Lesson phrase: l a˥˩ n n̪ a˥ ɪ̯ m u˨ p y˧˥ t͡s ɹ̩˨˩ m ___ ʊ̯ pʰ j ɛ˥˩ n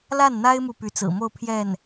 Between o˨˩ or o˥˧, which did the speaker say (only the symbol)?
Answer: o˥˧